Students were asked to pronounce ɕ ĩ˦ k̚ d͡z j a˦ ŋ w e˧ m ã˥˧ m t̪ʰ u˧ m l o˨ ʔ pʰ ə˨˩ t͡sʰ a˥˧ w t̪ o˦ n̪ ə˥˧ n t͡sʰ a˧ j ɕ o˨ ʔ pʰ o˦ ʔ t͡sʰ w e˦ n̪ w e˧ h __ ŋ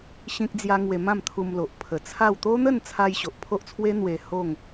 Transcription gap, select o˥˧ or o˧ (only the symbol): o˥˧